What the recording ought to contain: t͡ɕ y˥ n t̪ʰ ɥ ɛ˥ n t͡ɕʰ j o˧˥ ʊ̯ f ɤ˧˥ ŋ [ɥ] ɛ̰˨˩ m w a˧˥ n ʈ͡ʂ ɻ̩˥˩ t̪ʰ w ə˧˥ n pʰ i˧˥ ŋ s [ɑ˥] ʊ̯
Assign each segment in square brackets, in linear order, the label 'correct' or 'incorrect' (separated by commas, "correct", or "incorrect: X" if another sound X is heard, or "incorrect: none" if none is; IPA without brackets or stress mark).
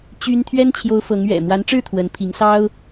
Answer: correct, correct